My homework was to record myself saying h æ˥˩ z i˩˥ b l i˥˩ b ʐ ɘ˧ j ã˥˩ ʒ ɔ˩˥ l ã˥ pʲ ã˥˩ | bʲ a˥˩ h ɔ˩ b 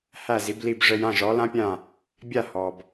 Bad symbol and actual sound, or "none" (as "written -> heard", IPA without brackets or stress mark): none